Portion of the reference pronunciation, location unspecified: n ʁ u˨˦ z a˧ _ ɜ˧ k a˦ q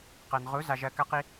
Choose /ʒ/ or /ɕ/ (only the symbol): ʒ